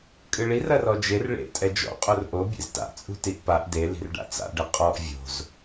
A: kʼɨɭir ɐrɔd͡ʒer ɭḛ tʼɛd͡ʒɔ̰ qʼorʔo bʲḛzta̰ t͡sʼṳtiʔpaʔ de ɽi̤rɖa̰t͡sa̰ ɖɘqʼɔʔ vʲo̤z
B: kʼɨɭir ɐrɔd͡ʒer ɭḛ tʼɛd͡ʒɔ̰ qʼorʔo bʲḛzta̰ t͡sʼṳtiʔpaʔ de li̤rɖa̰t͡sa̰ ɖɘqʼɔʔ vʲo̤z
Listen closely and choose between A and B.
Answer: B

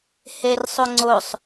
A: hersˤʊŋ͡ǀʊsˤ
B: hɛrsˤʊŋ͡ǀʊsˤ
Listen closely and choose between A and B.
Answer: A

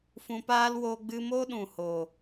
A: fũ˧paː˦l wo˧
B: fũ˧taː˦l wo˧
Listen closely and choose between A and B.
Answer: A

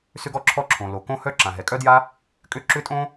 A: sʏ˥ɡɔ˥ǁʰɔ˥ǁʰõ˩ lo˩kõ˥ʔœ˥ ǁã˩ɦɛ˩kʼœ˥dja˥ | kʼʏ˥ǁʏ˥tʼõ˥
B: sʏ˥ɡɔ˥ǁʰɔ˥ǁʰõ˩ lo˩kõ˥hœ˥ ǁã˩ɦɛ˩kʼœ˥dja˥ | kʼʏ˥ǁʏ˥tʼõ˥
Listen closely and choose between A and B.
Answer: B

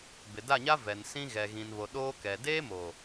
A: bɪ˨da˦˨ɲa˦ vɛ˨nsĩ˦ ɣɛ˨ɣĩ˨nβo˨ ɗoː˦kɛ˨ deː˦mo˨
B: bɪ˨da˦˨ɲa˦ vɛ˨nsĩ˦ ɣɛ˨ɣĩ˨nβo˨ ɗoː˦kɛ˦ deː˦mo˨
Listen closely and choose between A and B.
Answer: A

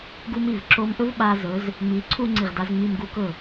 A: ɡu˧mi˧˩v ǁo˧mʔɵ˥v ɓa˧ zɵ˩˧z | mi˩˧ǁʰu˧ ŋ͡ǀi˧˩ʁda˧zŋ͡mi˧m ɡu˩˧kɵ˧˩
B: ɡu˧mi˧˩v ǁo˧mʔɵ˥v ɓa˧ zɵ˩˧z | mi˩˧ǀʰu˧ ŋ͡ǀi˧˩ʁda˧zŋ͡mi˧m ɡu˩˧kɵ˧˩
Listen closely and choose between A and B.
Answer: B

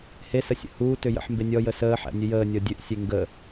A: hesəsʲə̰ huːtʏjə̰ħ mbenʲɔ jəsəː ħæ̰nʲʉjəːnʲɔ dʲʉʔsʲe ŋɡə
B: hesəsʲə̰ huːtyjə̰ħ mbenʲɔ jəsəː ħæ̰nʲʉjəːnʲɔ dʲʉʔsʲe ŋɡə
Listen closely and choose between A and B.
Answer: A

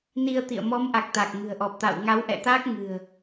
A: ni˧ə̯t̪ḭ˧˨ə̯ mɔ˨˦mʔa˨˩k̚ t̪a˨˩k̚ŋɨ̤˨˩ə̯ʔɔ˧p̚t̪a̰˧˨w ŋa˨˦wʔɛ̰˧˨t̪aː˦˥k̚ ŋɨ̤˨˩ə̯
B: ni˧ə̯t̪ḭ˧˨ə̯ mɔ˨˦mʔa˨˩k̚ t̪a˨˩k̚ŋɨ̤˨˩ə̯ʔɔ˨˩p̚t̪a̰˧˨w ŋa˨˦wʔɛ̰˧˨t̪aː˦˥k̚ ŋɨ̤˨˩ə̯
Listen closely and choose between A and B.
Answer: B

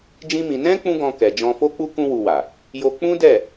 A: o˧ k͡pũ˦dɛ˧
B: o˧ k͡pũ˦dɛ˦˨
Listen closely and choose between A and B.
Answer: B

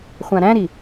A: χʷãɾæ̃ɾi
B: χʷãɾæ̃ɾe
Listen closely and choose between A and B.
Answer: A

